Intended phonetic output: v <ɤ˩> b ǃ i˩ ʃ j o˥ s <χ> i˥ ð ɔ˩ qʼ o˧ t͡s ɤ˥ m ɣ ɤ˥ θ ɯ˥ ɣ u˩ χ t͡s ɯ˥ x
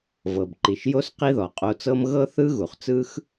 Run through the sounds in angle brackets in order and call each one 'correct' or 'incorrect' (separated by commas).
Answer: correct, incorrect